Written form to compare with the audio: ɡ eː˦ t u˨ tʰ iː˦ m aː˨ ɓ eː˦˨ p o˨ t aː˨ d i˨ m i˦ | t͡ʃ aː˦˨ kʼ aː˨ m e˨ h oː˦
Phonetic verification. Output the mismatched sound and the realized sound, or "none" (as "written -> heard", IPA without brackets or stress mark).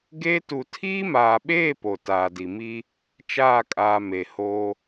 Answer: none